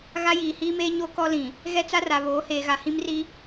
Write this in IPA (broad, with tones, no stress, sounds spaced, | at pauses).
ɣ a˦ j iː˨ h iː˦ m eː˦ ɲ o˦ k ɔ˦ l ĩ˨ | ɣ ɛ˦ t͡s a˦ r a˨ β oː˨˦ h eː˨ ɣ a˨ h ĩ˦ m r i˦